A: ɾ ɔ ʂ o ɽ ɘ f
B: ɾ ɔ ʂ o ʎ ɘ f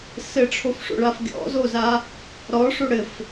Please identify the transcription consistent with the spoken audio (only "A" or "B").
A